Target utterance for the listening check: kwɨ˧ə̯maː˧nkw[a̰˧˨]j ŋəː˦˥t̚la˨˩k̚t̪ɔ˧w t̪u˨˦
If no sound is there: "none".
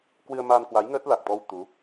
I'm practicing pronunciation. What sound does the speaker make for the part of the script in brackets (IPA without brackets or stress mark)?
a˨˦